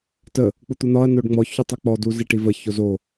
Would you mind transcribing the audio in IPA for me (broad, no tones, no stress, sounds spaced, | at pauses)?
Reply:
t ə | k͡p u t̪ u n̪ ɒ ɐ̯ n o ɖ ŋ͡m ɔ ç u tˤ ɔ k͡p ɔ d u z i ʈ i v ə ç o z o